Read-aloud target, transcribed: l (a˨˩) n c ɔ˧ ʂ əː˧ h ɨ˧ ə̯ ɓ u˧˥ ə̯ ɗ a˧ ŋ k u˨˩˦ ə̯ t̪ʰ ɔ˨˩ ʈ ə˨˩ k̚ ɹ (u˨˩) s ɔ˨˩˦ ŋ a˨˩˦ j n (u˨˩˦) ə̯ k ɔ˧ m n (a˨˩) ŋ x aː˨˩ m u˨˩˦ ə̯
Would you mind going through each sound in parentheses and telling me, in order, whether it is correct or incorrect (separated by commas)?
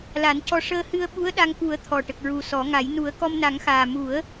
incorrect, correct, correct, incorrect